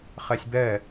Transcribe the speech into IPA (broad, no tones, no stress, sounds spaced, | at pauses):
χ ɛ sʲ b ɛ